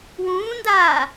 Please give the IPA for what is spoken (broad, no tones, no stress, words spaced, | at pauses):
wũːndaː